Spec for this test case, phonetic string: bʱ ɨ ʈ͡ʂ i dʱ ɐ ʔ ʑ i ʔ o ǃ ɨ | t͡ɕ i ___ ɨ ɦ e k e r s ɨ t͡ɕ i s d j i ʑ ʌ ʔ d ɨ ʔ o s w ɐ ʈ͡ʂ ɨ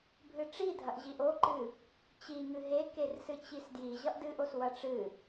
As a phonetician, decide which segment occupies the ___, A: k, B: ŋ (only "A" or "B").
B